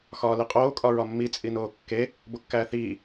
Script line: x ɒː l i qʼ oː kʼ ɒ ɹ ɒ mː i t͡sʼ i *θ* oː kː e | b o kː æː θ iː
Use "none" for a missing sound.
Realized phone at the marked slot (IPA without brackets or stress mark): n